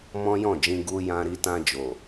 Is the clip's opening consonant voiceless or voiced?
voiced